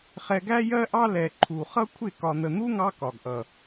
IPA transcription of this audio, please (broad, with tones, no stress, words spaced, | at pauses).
χɛ˧ɡæ˦jɜ˦ʔɑ˦ lɛ˨ ǃʰu˨χʌ˦kʷʰɪ˦˨ kɒ˨n̪ə˨n̪u˦ŋɑ˧ kɒ˨ɡʔʌ˨